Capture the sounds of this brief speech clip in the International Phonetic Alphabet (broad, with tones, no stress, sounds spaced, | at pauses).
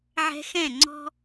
ʕ ɛ̤˧ x ɛ̃˦˨ ŋ͡ǀ ɔ̤˦